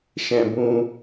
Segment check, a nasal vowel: present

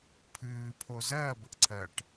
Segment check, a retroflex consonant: present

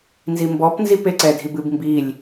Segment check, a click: present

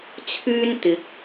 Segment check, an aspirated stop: present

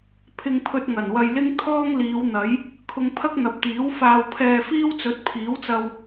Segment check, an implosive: absent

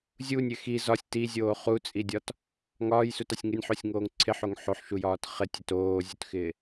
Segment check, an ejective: present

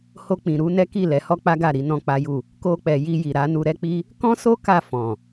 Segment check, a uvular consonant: absent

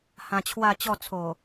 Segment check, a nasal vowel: present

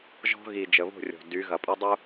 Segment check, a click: absent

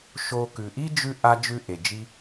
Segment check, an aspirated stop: absent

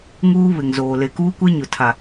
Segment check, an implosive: absent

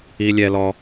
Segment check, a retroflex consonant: absent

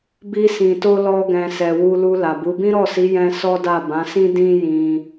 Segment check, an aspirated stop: absent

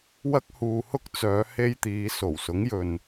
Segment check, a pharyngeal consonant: absent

